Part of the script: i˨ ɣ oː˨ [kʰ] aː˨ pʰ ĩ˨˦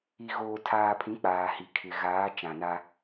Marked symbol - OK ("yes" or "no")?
no